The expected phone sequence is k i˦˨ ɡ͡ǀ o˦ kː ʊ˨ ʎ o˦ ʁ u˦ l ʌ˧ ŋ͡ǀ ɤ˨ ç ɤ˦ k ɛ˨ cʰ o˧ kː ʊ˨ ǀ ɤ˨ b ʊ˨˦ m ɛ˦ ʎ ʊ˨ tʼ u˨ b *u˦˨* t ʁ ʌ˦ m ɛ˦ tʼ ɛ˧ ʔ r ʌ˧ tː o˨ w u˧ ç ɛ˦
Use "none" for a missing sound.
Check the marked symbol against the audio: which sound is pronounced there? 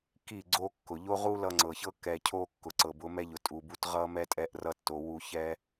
u˦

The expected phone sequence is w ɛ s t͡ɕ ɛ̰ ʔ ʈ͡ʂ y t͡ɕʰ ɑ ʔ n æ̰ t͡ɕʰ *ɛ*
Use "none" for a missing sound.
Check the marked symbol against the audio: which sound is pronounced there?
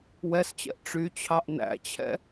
ɛ̰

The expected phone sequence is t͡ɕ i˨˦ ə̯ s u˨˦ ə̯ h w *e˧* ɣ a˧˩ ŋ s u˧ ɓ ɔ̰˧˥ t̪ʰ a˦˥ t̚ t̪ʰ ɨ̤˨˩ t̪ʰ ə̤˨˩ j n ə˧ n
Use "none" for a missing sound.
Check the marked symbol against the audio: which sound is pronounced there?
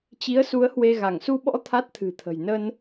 e˧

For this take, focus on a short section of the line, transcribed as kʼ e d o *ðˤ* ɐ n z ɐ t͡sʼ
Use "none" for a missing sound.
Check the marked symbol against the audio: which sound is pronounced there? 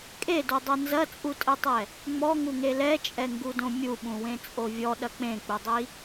dˤ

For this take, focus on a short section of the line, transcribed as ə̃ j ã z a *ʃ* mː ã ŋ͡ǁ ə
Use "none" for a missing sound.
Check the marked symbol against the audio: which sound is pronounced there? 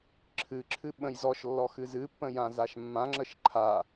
ʃ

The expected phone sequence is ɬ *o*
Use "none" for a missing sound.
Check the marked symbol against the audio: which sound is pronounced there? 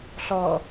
ɔ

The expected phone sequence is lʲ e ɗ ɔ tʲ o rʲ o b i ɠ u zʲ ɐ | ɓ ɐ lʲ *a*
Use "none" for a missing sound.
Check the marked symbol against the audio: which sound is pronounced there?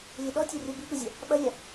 a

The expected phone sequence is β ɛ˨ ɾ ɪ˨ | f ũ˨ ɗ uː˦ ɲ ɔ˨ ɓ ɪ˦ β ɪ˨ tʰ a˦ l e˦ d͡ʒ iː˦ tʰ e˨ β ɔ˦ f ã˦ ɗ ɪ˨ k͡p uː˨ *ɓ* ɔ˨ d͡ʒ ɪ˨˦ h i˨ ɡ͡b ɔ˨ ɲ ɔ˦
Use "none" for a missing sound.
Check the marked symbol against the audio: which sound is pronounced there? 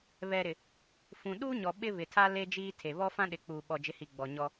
ɓ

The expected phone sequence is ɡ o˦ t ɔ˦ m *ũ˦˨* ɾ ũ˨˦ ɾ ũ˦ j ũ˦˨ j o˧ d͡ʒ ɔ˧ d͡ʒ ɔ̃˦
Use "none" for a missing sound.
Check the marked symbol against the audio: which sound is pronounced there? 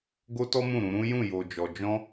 ũ˦˨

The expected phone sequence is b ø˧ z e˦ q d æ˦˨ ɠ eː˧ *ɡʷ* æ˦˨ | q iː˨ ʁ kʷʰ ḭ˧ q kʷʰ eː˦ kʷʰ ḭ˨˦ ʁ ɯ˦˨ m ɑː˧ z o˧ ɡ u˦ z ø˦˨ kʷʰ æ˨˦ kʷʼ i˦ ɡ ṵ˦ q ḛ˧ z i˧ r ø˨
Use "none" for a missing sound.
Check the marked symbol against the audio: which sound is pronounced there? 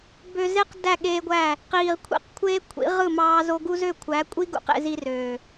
ɡʷ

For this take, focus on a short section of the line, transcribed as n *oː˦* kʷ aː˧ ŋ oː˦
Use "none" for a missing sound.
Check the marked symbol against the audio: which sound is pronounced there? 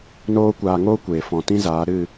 oː˦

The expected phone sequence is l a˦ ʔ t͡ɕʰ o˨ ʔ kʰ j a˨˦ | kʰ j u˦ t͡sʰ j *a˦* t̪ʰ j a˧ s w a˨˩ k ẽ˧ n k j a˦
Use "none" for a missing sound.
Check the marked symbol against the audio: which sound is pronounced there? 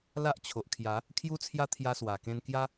a˦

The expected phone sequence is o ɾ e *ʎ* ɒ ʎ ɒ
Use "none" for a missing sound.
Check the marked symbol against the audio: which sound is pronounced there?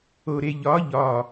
ʎ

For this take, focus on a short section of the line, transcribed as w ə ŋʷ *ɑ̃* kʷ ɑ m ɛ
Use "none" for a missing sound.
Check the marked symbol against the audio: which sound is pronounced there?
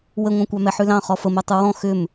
ɑ̃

